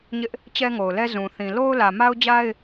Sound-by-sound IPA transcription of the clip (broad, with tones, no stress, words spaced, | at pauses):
ɲɪ˦ʔ | t͡ɕɛ˦ŋo˨ʊ̯lɛ˦ zũ˨ θĩ˨lo˦ʊ̯ lä˨ ma˦ʊ̯d͡ʑa˦ɪ̯